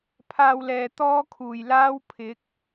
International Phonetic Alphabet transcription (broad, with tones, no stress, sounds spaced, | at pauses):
pʰ aː˧ w l ɛː˨ t̪ ɔː˥ kʰ uː˨˩ j l aː˥ w pʰ ɪ˨˥ k̚